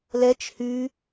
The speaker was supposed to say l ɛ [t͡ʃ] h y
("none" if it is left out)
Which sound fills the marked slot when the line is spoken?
t͡ʃ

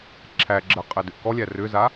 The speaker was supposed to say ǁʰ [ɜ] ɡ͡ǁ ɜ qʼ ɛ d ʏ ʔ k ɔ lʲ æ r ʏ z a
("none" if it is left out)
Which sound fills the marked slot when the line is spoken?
æ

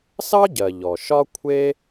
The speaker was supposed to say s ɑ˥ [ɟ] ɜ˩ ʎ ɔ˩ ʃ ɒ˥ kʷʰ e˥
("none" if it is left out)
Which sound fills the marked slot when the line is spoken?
ɟ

